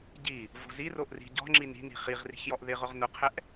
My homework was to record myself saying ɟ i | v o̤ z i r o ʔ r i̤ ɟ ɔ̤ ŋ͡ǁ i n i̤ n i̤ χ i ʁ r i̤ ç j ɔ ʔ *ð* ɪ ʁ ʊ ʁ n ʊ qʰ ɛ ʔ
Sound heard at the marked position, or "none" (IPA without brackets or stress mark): ð